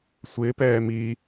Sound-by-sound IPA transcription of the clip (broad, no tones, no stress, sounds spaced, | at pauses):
sʷ ɪː p ɛː m i